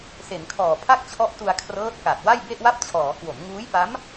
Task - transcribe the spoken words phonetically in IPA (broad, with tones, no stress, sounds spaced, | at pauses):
s e˩˦ n kʰ ɔː˨˩ pʰ a˥˩ k̚ t͡ɕʰ ɔ˦˥ ʔ t u˧ a̯ kʰ r ɤː˦˥ t̚ k a˨˩ t̚ w a˥˩ j b e˥˩ ʔ w a˥˩ p̚ t͡ɕʰ ɔː˩˦ k w o˩˦ m ŋ uː˦˥ j p a˦˥ m